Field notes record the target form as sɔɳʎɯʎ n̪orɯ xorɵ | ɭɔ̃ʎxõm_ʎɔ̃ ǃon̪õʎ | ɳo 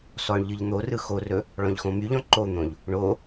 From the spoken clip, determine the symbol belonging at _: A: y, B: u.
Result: A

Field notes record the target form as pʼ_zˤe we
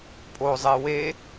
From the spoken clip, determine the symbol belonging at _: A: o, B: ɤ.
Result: A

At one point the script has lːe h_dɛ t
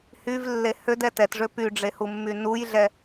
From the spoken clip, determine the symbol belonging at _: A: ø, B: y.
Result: A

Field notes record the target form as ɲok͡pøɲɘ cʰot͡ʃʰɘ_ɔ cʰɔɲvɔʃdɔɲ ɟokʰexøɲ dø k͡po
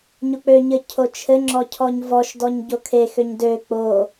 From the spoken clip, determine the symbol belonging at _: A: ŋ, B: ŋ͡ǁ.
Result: B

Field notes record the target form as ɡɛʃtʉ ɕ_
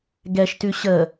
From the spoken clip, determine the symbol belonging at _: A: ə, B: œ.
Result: A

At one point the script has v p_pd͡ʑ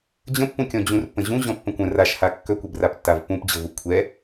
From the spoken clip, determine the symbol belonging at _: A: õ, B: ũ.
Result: B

